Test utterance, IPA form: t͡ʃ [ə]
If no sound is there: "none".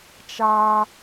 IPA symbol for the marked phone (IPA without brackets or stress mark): a